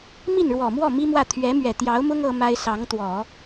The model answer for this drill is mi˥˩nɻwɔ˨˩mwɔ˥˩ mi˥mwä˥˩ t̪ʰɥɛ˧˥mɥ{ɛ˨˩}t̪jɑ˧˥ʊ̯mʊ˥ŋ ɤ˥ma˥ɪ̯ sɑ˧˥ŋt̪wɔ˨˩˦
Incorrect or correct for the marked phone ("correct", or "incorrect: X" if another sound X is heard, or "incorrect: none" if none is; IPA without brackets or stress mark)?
correct